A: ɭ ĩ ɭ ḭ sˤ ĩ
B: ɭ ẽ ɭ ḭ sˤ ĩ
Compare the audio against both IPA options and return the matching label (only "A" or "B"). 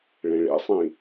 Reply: B